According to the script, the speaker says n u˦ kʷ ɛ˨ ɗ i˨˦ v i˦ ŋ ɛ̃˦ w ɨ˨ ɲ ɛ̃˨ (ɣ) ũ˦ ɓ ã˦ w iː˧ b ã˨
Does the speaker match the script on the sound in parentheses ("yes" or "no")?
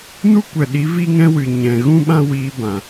yes